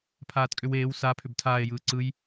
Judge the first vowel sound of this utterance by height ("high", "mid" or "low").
low